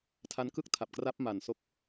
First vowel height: low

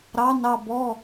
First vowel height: low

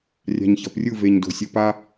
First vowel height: low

